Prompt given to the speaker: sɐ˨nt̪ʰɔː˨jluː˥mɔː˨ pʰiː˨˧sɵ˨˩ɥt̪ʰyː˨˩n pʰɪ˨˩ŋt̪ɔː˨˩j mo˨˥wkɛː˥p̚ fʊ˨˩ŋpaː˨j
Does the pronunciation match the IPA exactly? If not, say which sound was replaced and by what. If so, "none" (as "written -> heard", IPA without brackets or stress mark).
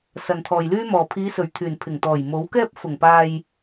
uː˥ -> yː˥